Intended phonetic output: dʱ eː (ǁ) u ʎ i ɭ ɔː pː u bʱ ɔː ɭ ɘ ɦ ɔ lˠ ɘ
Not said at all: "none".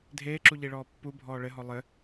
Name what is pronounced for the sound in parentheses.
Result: ǁ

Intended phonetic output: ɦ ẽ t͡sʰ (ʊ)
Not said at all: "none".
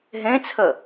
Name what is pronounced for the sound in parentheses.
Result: ə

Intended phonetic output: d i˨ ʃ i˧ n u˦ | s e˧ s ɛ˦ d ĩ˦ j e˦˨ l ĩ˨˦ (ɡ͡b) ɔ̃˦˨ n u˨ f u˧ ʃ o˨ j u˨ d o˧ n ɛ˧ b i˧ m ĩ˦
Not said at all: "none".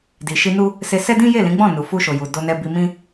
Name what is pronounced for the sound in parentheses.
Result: ɡ͡b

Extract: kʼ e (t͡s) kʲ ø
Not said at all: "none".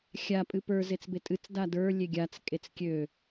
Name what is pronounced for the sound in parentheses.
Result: t͡s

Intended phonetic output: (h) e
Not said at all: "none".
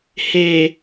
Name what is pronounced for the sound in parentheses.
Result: h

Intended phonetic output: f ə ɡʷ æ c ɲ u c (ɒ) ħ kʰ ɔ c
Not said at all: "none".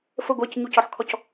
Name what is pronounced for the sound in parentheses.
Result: ɒ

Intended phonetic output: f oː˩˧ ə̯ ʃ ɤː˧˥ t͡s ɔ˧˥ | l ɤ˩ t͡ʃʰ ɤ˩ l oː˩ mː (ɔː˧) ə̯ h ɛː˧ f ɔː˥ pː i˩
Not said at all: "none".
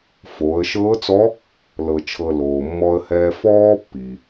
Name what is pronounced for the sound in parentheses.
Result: ɔ˧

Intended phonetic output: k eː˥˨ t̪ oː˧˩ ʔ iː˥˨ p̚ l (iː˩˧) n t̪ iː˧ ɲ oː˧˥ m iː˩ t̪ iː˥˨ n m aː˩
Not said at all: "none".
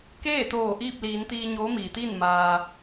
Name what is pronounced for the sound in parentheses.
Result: iː˩˧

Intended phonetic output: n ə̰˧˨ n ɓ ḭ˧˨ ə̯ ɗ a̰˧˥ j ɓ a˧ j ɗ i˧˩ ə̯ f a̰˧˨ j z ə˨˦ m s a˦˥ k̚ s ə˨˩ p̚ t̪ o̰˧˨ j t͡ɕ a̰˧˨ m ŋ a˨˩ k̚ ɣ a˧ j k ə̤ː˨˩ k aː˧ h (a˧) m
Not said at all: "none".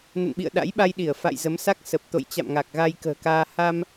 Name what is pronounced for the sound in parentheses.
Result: a˧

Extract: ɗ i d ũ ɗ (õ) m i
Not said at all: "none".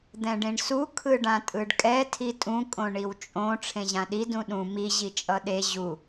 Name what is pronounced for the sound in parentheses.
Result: ũ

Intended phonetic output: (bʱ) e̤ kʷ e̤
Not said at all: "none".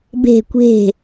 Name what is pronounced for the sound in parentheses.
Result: b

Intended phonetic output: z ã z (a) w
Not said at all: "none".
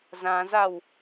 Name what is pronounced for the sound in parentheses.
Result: a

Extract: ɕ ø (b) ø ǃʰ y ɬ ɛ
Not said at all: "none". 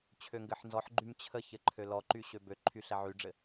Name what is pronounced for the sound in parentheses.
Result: b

